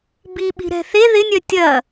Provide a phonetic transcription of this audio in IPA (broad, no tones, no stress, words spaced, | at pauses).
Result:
biɓi̤ ɾɛ̤θe ðɪnʲœ tʲɐ